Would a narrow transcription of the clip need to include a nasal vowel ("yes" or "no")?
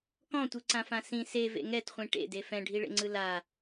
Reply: yes